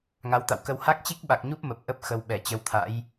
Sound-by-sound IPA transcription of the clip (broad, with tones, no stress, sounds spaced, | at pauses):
ŋ a˨˦ w t̪ a̰˧˨ w k ə˧ w h a˦˥ k̚ t͡ɕ i˦˥ k̚ ɓ a˨˩ k̚ ɲ u˦˥ p̚ m ə˨˩ p̚ ʔ ə˦˥ p̚ x ə˧ w ɓ ɛ˧˩ t͡ɕ ə˨˦ w t̪ʰ a̰˧˥ j